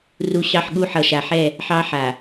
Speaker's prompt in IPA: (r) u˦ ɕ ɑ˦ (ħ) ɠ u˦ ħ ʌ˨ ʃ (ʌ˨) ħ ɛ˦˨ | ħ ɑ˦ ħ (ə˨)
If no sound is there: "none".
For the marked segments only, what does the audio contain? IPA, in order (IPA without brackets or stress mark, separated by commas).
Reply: r, ħ, a˨, a˨